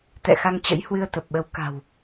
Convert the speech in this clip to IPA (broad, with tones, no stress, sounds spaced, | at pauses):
t̪ ɛ̰˧˨ x a˧ ŋ t͡ɕ ə̰˧˥ j h w ɨ˧ ə̯ t̪ ə˨˩ p̚ ɓ ə˨˦ w k a̤˨˩ w